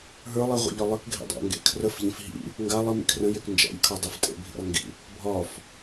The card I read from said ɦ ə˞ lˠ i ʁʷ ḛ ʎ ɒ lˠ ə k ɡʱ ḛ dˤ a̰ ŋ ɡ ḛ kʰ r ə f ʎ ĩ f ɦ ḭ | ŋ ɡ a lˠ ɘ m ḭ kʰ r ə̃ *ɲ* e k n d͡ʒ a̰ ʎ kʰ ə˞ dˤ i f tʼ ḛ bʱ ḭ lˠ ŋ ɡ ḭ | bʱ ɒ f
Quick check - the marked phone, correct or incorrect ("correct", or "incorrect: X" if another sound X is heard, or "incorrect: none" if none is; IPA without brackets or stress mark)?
incorrect: j